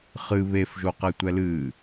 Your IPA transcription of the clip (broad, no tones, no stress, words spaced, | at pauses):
χɨ βefʒoqɛtʷɛ lɨ